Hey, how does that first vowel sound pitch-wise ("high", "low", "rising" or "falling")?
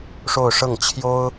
falling